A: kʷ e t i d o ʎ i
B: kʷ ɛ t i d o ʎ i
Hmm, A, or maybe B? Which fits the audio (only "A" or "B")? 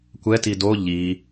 B